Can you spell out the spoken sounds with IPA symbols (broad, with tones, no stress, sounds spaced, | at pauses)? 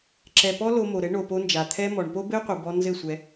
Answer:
ǁ ɛ˨ p ɔ˦ l o˧ m o˨ ɾ ɘ˨˦ ɳ o˨ p o˧ n d͡ʒ a˨ t̪ʰ ɛ˦ m ɔ˨ ɳ p o˦ b ɘ˦ y̯ qʷ ɨ˨ b ɔ˧ n z ɘ˦˨ sʷ ɛ˧